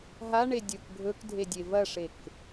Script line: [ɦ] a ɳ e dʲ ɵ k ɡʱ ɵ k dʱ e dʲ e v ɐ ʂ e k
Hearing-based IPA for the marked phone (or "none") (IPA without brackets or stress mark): ɦ